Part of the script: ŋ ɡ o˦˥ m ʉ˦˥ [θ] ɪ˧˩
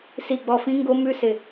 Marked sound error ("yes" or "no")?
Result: yes